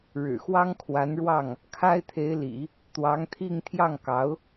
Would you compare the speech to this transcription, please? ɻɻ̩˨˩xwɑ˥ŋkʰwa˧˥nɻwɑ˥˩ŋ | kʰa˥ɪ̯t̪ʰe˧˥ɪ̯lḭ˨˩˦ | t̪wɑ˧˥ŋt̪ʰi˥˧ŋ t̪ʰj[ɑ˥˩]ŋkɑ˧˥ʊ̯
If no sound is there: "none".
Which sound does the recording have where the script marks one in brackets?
ɑ˥˩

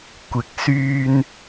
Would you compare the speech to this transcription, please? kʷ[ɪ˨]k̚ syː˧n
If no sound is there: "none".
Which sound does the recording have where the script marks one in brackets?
ɪ˨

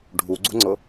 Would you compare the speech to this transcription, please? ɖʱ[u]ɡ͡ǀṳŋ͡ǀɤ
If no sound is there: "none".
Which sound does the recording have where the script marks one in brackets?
u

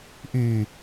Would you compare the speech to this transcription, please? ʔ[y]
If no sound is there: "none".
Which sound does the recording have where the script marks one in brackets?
y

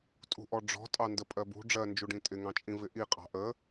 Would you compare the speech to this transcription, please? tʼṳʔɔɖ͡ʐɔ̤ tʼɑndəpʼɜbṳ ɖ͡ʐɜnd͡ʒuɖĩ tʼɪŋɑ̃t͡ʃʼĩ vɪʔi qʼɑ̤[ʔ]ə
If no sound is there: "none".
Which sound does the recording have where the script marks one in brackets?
ʔ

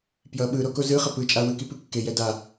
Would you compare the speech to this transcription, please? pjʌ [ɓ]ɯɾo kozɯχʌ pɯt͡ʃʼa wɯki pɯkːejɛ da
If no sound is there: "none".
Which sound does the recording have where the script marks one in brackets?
ɓ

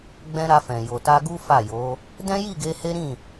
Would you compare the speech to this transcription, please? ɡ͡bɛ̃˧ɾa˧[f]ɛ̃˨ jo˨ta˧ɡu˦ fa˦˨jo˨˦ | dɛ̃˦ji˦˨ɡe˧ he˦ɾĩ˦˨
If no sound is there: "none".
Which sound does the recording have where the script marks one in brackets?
f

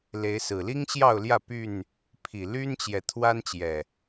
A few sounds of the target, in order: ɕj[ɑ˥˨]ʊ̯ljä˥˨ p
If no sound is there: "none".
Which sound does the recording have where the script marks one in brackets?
ɑ˥˨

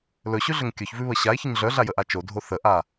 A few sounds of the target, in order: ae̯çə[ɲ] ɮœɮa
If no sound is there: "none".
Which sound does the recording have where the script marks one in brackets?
ɲ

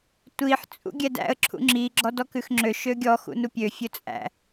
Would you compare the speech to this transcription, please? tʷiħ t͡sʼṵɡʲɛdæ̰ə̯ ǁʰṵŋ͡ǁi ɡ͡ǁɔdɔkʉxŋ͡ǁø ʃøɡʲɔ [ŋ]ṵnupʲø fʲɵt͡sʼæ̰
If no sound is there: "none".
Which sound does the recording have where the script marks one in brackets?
x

